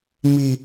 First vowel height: high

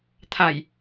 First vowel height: low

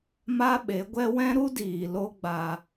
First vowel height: low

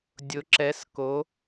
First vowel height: high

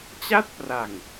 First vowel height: low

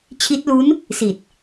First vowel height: high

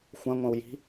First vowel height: low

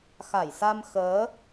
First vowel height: low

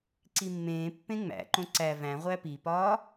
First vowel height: high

